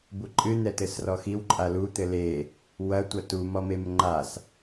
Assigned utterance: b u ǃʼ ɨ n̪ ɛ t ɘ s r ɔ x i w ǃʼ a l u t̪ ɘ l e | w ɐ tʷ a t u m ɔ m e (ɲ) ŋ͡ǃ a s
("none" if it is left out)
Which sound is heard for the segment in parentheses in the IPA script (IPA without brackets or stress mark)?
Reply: m